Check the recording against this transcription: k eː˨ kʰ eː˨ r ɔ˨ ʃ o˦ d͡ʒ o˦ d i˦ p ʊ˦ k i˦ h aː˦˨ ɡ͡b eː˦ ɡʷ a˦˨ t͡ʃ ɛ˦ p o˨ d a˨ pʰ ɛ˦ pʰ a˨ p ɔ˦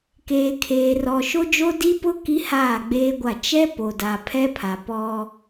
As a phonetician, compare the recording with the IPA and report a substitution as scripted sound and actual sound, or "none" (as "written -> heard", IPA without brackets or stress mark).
none